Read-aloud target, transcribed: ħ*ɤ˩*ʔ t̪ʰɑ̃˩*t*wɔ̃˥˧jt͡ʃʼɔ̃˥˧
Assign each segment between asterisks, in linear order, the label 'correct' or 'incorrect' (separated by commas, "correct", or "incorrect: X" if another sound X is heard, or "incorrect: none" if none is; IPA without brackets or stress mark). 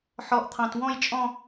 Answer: incorrect: ɔ˩, correct